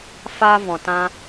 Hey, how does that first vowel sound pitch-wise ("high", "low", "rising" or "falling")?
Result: high